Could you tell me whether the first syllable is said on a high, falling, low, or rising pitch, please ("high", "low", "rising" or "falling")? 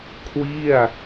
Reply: falling